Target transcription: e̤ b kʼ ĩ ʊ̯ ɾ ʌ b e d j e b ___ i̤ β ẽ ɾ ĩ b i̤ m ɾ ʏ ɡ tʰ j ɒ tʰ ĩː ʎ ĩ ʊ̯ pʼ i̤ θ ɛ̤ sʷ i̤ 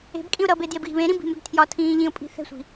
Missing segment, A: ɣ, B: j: A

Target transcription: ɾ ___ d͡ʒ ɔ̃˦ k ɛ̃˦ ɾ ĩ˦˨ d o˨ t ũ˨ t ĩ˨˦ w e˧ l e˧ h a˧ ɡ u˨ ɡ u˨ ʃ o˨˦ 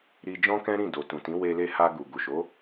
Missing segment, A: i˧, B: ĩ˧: A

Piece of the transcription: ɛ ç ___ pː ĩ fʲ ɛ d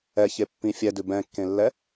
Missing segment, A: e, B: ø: A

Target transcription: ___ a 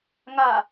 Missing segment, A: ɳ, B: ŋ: B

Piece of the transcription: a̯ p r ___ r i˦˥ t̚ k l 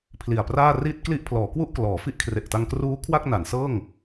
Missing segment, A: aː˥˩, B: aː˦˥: A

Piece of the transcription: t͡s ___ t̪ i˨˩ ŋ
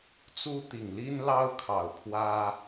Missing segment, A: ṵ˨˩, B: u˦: B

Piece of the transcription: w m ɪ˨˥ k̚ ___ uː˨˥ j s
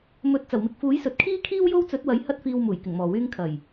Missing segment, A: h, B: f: B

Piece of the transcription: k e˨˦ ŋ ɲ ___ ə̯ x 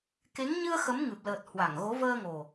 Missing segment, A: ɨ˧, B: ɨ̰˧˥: A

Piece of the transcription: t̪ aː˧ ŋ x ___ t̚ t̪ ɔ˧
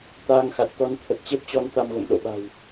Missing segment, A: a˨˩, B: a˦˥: A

